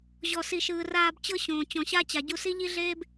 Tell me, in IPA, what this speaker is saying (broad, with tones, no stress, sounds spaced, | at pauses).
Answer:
ʑ ɔ˨ s i˨ ʃ ɯː˨ r aː˧ b t͡ɕ ɤ˦ ɕ õː˨ t͡ɕ ɔ̃˨ ɕ a˦ t͡ɕ a˨ ɟ u˧ s i˦ ʎ i˦ ɮ eː˦ b